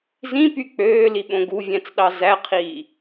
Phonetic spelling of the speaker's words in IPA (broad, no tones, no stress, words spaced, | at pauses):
zĩpy k͡pøːliɓõ ɡuvʲæ̃t͡sɗɑ zæqʰiː